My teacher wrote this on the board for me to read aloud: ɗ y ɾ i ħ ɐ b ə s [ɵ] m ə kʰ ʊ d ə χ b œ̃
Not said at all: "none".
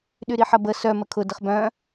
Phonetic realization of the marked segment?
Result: œ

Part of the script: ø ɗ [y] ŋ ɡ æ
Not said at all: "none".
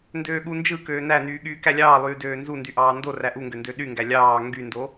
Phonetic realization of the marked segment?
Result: y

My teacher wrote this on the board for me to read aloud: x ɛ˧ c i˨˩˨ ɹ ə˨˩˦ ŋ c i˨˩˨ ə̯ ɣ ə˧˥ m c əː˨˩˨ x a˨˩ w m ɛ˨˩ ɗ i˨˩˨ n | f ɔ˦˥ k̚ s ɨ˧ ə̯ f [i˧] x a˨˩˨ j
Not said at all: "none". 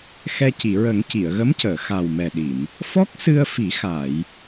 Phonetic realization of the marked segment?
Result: i˨˩˦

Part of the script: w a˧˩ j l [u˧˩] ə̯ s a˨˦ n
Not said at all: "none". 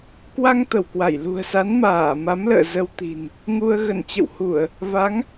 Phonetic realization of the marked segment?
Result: ṳ˨˩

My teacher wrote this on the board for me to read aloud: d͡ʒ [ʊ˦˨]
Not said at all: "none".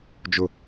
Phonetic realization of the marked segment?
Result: ʊ˦˨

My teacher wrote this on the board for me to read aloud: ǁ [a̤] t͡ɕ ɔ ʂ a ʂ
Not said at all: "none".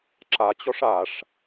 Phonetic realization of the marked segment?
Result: a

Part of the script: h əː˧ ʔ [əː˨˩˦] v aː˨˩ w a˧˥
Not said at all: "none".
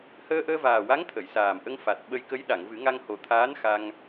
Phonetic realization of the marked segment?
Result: əː˧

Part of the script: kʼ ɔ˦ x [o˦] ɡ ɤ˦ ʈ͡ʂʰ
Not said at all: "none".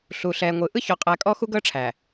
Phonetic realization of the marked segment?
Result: u˦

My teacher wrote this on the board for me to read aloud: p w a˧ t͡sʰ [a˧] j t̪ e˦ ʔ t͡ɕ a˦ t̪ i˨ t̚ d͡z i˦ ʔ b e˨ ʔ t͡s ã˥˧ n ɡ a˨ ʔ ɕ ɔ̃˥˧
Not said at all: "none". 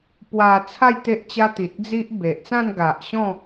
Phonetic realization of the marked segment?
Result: a˥˧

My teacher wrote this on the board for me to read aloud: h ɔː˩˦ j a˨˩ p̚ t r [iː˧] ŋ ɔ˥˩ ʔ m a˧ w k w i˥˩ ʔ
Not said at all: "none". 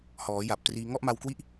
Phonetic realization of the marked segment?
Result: iː˧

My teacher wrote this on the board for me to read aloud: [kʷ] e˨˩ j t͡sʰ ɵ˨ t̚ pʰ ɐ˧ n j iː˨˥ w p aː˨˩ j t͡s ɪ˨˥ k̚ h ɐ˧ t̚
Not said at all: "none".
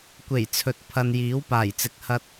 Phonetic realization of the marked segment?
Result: kʷ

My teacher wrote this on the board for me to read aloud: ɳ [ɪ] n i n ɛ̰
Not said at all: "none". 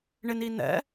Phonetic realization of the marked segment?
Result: ɪ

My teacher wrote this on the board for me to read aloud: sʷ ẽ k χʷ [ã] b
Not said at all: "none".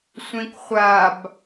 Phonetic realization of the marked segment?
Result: a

